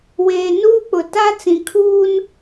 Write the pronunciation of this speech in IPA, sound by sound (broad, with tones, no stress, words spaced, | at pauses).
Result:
weː˨ nuː˦k͡pʊ˨ ta˦ t͡sĩ˨kʰuː˦n